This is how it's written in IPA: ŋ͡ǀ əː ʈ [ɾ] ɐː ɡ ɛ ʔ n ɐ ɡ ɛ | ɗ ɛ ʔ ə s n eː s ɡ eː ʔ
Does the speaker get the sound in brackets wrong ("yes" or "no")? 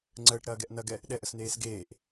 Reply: no